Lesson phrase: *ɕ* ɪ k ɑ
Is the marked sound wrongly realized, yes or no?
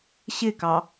no